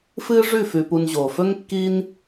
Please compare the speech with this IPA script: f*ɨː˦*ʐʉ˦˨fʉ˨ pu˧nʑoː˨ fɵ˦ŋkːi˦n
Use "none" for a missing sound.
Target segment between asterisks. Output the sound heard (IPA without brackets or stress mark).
ɨː˦